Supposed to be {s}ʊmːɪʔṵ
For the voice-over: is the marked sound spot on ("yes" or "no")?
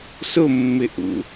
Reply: yes